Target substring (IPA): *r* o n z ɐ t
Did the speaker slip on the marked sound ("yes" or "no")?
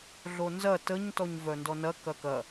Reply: yes